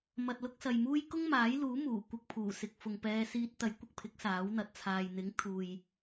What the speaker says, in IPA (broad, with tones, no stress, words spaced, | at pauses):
mɐ˨t̚lʊ˧k̚ sɐ˨jmuː˥j kʊ˥ŋmaː˨˥jluː˨˥muː˨˩ kʷɪ˧k̚pʰuː˨˩ sɪ˨k̚fʊ˨ŋpɛː˧ siː˧t̚t̪ɐ˨˥jkʷɪ˨k̚pʰɪ˨˥k̚ saː˨˥wn̪ɐ˨t̚ t͡sʰaː˨jn̪ɪ˨˥ŋt̪ʰuː˨j